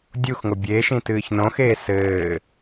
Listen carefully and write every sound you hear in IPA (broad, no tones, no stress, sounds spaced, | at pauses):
dʲ u x ŋ o bʲ e ʃ ĩ t ɨː ç n õ x eː s ɘː